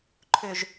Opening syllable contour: low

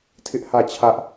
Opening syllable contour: high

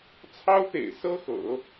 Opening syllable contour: high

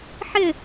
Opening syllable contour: falling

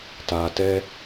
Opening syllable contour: low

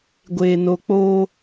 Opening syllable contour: low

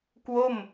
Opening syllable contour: falling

